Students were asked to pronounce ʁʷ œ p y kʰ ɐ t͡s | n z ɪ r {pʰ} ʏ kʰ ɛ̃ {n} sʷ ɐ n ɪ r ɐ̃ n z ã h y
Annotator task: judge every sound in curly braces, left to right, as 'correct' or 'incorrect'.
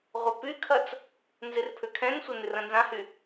correct, correct

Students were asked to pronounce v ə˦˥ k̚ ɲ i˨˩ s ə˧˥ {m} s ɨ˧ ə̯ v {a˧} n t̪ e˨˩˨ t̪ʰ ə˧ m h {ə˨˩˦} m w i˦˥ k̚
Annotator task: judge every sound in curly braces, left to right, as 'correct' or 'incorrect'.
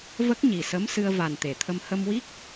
correct, incorrect: a˨˩, incorrect: ə˧

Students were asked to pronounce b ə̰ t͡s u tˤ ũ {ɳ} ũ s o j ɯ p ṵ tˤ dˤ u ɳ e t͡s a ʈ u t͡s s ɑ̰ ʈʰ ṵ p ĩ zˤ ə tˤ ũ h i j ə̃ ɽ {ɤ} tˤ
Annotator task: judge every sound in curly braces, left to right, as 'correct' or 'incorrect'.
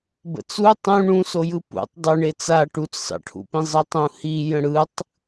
correct, incorrect: ɯ

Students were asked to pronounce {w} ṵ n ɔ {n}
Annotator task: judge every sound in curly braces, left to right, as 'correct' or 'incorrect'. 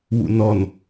correct, correct

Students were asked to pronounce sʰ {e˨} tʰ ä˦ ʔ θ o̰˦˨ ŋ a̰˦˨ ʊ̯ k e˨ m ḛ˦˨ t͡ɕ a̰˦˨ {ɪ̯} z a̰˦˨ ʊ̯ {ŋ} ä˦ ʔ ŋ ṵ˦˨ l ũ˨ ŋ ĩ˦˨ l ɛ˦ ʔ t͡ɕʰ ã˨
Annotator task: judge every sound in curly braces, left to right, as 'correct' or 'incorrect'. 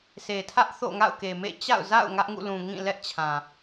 correct, incorrect: ʊ̯, correct

